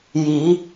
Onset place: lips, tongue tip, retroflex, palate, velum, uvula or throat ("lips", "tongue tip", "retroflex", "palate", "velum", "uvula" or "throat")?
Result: palate